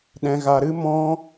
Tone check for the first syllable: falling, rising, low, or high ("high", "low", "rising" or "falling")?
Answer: low